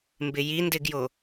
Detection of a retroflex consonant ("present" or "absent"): absent